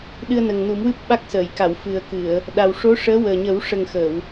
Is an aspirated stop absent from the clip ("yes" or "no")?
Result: yes